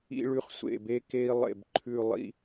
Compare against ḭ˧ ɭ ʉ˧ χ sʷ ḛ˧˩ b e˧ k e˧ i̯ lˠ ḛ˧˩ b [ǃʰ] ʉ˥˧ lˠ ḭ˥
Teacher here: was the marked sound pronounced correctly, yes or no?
yes